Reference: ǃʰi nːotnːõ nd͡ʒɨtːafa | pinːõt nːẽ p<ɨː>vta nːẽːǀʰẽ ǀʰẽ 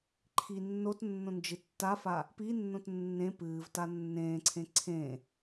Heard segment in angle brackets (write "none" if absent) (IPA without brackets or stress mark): ɨː